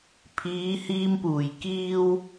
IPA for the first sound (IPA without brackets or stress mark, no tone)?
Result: pʰ